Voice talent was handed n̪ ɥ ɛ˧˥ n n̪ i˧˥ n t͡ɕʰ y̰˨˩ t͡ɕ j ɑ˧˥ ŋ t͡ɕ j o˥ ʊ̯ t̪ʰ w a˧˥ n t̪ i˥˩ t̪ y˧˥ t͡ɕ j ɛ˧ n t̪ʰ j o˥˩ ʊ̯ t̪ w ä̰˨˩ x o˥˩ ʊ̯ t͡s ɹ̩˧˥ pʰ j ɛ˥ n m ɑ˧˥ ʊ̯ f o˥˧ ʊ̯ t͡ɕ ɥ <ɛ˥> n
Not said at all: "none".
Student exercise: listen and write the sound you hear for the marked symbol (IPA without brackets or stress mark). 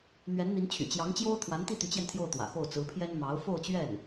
ɛ˥˩